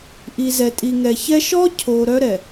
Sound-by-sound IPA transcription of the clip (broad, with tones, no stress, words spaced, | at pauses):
ʔi˨zɛ˨ tʼi˨ŋɛ˨çɛ˦ ʃɔ˦cʰo˨ ɾœ˦ɾɛ˨